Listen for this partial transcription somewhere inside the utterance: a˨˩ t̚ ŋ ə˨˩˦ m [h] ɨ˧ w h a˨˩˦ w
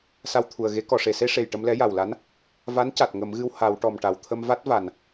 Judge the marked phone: incorrect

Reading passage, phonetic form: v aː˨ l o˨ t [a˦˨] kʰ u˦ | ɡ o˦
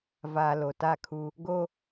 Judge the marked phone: correct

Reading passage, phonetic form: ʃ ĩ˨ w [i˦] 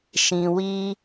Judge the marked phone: correct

